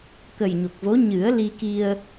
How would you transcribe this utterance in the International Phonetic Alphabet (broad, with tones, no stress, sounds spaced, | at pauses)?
k ə˨˩ j ɲ o˨˩ k̚ v o˧˥ ɲ ɨ˨˩˦ ə̯ l i˧ k i˧ ə̯